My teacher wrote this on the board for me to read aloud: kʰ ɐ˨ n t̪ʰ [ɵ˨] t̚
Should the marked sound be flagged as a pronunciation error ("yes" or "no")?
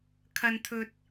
no